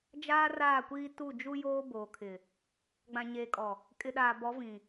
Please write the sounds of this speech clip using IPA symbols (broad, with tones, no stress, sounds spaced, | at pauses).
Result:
d͡ʒ aː˦ r aː˦˨ kʷ iː˦ t u˦˨ d͡ʒ u˦ j oː˦ b oː˨ kʰ ɪ˨ | ɡ͡b ã˨ ɲ eː˨ kʼ ɔ˨ | kʼ ɪ˨ ɗ aː˨ b ɔ˨˦ v ĩ˨